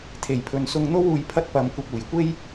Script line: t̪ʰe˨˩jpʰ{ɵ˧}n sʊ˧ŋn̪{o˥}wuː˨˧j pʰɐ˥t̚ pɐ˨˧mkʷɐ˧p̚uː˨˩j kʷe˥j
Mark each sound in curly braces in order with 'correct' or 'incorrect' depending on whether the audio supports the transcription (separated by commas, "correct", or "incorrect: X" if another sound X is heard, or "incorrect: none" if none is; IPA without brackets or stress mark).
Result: incorrect: ɵ˨, correct